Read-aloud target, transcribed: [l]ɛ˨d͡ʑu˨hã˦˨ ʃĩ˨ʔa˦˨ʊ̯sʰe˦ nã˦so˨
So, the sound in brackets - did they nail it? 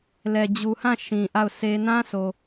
yes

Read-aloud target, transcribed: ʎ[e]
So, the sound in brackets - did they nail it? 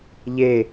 yes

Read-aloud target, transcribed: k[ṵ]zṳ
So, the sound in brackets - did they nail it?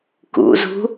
yes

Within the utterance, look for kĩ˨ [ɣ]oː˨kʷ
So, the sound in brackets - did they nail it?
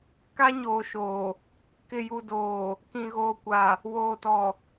yes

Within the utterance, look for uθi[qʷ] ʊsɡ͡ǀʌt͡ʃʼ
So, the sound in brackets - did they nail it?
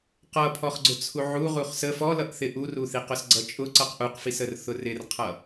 no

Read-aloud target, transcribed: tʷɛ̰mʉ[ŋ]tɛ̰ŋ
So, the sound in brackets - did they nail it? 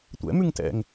yes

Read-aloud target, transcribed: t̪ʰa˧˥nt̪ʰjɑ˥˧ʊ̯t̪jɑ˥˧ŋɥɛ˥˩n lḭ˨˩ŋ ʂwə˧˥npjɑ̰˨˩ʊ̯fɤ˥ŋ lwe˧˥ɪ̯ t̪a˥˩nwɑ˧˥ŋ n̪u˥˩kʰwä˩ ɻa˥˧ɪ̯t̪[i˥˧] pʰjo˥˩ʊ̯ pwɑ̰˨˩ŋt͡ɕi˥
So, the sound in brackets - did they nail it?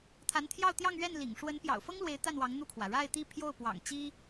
yes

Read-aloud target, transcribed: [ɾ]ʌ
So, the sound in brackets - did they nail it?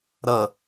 yes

